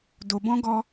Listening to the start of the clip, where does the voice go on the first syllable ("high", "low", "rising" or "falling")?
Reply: low